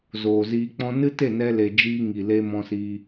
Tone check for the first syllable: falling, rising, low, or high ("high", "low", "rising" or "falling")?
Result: low